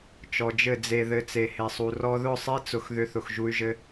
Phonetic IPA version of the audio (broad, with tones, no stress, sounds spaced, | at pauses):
t͡ʃ ɔ˨ d͡ʒ ɘ˦˨ d͡z e˧ ð ɘ˧ t͡s e˨ h e˨ sˤ u˨ r ɔ˧ ð ʊ˦˨ sˤ e˦ t͡s ʊ˧ x ð ʏ˧ θ ʊ˨ x ʒ u˧ y̯ ʒ ɘ˧